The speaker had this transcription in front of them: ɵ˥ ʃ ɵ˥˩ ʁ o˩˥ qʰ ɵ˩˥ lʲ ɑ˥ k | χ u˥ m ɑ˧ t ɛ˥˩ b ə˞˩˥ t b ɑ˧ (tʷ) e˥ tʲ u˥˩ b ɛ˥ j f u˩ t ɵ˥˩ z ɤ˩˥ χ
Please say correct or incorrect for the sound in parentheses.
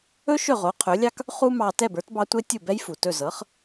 correct